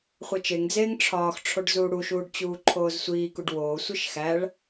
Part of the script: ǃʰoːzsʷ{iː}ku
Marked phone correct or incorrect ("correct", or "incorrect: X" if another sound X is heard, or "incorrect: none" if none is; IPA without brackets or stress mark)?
correct